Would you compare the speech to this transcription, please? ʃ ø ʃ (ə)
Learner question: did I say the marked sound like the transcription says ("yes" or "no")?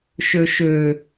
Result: no